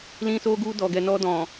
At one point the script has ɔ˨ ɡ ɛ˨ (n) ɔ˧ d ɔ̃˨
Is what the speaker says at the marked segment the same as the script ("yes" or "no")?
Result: yes